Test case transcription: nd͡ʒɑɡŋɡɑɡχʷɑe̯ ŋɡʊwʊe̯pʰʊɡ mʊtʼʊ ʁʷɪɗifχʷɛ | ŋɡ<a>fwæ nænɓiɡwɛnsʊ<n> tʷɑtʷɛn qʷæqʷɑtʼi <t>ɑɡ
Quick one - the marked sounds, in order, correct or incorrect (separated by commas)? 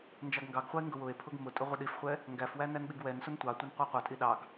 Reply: incorrect, correct, incorrect